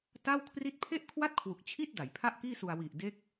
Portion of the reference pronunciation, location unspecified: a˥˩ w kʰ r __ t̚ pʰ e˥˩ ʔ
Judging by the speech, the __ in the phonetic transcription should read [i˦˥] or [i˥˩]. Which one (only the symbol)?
i˥˩